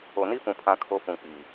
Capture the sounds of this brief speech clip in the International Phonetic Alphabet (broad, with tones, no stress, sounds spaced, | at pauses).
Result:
o˨ n i˦ f ũ˨ pʰ ã˦ kʰ o˦ f ũ˨ k͡p i˨